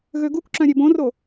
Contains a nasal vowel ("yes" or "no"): yes